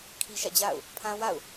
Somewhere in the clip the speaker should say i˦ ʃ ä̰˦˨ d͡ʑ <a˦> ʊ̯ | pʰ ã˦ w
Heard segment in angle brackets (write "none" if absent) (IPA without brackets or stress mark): a̰˦˨